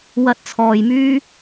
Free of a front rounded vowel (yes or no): no